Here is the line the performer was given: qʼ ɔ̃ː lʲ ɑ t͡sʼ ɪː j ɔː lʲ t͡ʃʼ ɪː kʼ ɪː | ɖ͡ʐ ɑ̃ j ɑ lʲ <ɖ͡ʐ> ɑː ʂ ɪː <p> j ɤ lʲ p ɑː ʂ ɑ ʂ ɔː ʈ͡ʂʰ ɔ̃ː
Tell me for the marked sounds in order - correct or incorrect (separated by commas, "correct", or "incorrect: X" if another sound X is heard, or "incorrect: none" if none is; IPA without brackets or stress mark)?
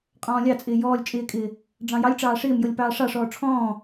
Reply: incorrect: ʈ͡ʂ, incorrect: m